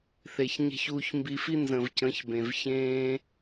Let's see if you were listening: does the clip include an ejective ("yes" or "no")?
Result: no